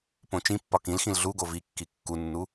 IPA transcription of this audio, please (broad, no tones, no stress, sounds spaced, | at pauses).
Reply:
p õ t͡ʃ ĩ pː ɒ k ĩ l x ĩ l ɮ u ɡ o v i kː i kː u nː u